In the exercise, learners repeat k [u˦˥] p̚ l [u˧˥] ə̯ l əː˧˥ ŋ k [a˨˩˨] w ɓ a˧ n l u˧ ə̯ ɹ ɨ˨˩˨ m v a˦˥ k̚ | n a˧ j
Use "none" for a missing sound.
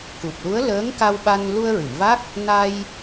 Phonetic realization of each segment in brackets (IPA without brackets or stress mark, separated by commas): u˨˩, u˧˥, a˧